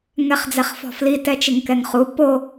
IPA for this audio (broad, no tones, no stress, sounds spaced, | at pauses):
ŋ ɛ χ d͡z ɛ χ f ɔ̤ f l i t ɛ t͡ʃ ɪ ŋ k ɛ ŋ χ u p o